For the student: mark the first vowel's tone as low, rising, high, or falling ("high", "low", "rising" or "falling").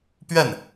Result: falling